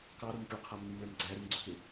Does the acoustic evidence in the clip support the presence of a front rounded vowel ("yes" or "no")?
yes